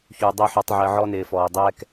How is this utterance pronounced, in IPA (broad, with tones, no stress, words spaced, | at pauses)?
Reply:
çu˨ dˤəː˦ħu˧tˤʕəː˧ ʕɔ˧nɪː˨fɔː˨ dˤɛː˦k